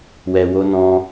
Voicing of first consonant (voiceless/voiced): voiced